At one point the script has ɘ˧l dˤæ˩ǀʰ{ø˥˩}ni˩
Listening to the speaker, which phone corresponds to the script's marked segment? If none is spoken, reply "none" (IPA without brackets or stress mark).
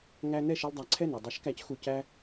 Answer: ɛ˥˩